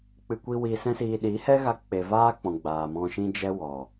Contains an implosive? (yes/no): yes